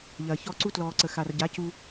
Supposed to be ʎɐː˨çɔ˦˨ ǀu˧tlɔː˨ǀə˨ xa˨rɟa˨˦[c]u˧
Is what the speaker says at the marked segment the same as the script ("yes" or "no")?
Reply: yes